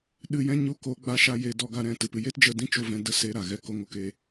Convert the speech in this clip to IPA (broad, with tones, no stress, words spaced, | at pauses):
ɗɨ˧jɛ̃˦ ɲu˧ ko˨˦ ɡ͡ba˧ʃa˧ je˧ dɔ˧ ɡa˧ɾɛ̃˧ tɨ˨pɨ˧ je˦td͡ʒə˧dĩ˦t͡ʃo˧ vɛ̃˧də˦se˧ɾa˨ ɣɛ˧ko˧ŋo˧k e˧